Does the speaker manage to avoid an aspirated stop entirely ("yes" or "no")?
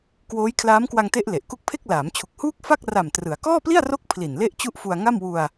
no